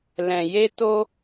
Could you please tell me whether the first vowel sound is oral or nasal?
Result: nasal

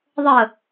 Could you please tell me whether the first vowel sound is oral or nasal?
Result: oral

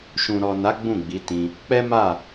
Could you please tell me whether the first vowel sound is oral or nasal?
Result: nasal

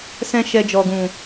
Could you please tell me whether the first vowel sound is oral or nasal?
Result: nasal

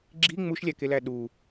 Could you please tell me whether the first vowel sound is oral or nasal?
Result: oral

